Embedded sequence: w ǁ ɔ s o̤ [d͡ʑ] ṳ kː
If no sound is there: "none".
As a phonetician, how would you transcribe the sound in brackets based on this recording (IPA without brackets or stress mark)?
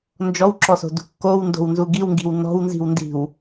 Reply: d